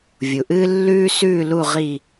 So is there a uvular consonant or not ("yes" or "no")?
yes